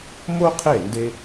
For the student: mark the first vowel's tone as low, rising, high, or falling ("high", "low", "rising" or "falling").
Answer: high